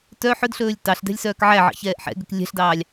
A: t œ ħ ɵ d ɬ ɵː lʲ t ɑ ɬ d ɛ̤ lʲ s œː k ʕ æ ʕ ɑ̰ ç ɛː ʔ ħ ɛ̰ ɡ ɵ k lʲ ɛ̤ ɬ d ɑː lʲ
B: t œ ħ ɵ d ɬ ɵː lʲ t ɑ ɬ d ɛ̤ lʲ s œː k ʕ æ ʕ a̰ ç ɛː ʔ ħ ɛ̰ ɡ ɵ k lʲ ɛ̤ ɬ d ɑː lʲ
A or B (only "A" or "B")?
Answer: A